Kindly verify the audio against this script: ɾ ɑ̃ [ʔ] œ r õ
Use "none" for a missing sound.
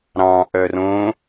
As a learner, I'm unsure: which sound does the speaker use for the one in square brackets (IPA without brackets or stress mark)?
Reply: ʔ